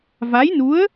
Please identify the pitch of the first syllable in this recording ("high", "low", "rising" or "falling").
rising